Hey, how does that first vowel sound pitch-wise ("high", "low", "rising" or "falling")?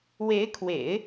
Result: rising